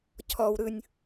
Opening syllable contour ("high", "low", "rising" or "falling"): low